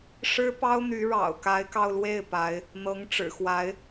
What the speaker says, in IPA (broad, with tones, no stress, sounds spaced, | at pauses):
ʂ ɻ̩˥ p ɑ˥ ʊ̯ n̪ y˧˥ ɻ ɑ̰˨˩ ʊ̯ k a˧˥ ɪ̯ k ɑ˧ ʊ̯ l w e˥˩ ɪ̯ p a˧˥ ɪ̯ | n̪ ɤ˧˥ ŋ ʈ͡ʂ ɻ̩˨˩ x w a˧˥ ɪ̯